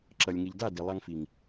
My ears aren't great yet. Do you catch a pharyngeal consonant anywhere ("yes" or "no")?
no